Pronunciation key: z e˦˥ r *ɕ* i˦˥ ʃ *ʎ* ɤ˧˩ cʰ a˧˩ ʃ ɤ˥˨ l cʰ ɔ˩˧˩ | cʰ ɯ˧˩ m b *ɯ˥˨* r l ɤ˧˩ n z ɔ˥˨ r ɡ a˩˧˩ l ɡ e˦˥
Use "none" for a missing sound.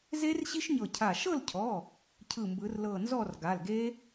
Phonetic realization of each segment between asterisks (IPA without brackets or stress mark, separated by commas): ɕ, ɲ, ɯ˨˦